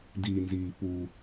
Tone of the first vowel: low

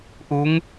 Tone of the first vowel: rising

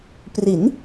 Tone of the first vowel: rising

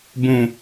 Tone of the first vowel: low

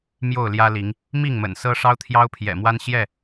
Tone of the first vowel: falling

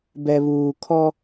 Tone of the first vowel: low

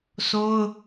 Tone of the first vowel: high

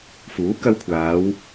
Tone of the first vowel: rising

